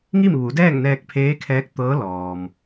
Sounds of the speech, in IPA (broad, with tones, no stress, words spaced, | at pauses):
ŋi˥˨mʋu˩˧dɛː˥˨ŋnɛː˧k̚ pʰeː˧˥kʰɛː˧˥k̚ t̪ɤː˧˥lɔː˩m